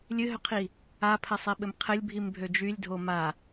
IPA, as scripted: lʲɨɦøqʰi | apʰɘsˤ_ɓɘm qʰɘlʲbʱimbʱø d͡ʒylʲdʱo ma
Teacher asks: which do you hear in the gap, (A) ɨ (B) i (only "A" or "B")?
B